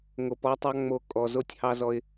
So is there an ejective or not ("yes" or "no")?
yes